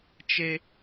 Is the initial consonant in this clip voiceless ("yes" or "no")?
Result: yes